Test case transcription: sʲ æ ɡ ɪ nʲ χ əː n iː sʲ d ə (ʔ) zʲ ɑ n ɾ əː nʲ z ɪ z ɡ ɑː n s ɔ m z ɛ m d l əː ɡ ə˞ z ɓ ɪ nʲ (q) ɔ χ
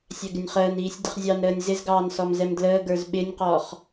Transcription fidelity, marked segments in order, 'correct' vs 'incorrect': incorrect, correct

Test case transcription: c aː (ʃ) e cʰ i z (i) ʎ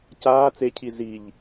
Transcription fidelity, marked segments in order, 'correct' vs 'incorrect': incorrect, correct

